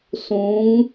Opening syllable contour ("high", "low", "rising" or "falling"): rising